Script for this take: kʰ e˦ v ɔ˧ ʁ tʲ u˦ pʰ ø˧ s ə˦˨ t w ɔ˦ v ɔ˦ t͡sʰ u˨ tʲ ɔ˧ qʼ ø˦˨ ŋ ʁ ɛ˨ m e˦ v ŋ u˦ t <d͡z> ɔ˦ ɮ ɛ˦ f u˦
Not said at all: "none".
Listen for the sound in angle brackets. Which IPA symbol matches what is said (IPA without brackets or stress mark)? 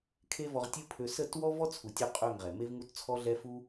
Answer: t͡sʰ